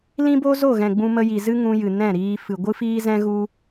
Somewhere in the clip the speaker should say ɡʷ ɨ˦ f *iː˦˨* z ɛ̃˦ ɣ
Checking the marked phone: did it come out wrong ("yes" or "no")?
yes